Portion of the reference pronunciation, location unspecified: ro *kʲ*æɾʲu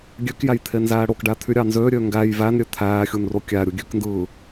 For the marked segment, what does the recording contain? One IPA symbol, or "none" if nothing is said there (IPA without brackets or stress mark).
kʲ